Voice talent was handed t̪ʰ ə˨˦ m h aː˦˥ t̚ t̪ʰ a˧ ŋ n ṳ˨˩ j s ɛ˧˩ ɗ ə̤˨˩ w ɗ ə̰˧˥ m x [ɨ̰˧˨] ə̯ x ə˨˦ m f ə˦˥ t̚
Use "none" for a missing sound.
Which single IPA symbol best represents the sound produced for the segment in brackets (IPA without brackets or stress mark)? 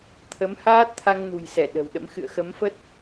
ɨ̰˧˨